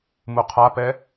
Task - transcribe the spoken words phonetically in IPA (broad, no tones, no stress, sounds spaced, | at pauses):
m u qʰ a p ɛ